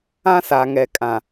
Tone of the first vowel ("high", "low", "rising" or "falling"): high